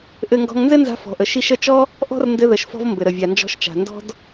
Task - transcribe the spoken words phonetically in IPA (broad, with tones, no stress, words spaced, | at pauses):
ʔɘ˧ŋɡɔ̤˧ŋ nzɘ˥nza̤˧ fɔ̤˩ʔə˩ ʃi˧ʃ ə˧t͡ʃɔ˥ | ʔɔ̤˥r ndɘ˧ðə˩ʃfɔ̤˧v mbɘ˩ɾə˩ vʲa˩nd͡ʒɔ̤˧ʃt͡ʃa̤˩ ndɔ̤˥d